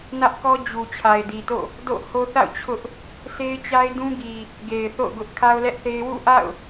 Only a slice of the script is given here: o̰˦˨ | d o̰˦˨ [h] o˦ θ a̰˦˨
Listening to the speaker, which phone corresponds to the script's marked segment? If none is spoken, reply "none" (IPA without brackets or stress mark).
h